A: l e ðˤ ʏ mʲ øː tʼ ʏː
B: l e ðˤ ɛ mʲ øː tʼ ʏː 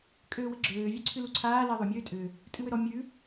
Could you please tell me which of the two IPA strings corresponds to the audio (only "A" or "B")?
A